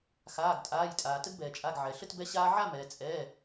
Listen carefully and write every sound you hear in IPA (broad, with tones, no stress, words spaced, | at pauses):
xaː˩˧˩ɡtʼaː˩˧˩jtʼaː˩ tə˧ɡbɛː˩t͡ʃʼa˩˧˩ɡ ʕɛ˩ ɬə˥˨t bɛ˧ɕaː˧ʕa˥˨ mɛː˩t͡sʼɛː˩˧˩